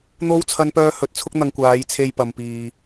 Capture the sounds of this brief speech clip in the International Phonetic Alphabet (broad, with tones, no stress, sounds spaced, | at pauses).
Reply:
n̪ o˥ w t͡sʰ ɐ˥ n p œː˥ h ɵ˨˥ t̚ t͡sʰ ʊ˥ k̚ n̪ ɐ˧ ŋ kʷ aː˨˧ j t͡sʰ e˧ j p ɐ˧ m p iː˧